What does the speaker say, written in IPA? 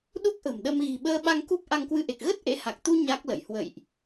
ɗ u˦˥ k̚ ʔ ə̤˨˩ m ɗ ə˧ m ɣ i̤˨˩ ɓ əː˧ ɓ a˧ ŋ k u˦˥ p̚ ʔ a˧ ŋ k w ɨ˧ ʔ e˨˩ k̚ ɣ ə˦˥ t̚ ʔ ḛ˧˥ h a˨˩ k̚ t̪ u˧ ɲ a˦˥ k̚ l ə̰˧˨ j h w ə̰˧˨ j ʔ

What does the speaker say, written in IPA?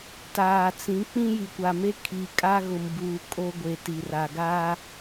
t aː˨ t͡s ĩ˨˦ k͡p ĩ˦ j i˨ kʷ a˨ m e˦ kʰ i˨ kʼ a˦ ɣ ʊ˨ m b uː˨ kʼ o˦ ɡʷ e˨ t i˨ r a˨ ɡ aː˦

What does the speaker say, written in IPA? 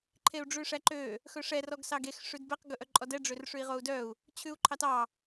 ǃʰ e u̯ ɖ͡ʐ ʉ ʂ æ ǃ ø | x ɵ ʂ ɛ r ɔ ɡ s ɑ ɡ e x ʂ ʉ d b ɛ q ɡ ɵ ʔ œ ǃʼ ɔ d ɛ ɖ͡ʐ ø r ʂ ʉ i̯ ʁ o u̯ d œ u̯ | t͡ɕʰ ʉ u̯ ǃʰ ɑ t ɑ

